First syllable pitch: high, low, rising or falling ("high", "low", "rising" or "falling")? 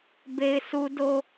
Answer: high